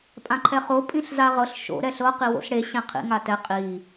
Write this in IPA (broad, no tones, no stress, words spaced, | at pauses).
pʼãǃʰɛχo pʼĩɬzaʁɤɬ ʃo̰ ɾɛɬɤ qiwo̰sɽe ɕẽqʰḭ ŋatɛ qʼi